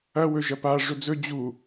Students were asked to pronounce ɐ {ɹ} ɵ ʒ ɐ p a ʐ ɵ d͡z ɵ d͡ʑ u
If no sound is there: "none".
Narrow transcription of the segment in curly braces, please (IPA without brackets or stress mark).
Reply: w